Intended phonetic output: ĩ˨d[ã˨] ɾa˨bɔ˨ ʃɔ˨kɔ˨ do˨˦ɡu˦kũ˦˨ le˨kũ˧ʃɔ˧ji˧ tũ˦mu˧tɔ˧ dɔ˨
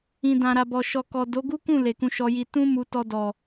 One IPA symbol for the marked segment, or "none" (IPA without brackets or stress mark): ã˨